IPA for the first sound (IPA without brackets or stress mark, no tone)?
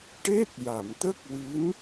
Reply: ʈ